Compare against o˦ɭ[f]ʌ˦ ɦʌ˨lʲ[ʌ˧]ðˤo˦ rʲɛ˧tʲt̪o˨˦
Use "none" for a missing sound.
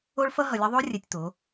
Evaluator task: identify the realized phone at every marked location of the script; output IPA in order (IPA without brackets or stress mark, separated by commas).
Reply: f, ʌ˧